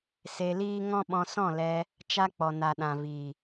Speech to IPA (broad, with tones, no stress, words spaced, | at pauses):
se˧liː˦ ŋɔ̃˦ɓɔ̃˧sɔ̃˦˨lɛ˧ | t͡ʃa˦k͡pɔ˨na˨ ɗã˨vi˨